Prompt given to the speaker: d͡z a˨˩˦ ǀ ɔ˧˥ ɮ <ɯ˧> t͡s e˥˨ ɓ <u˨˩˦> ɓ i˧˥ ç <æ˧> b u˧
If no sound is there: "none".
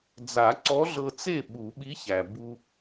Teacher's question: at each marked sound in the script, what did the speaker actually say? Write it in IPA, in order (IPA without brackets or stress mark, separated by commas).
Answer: ɤ˧, u˨˩˦, æ˩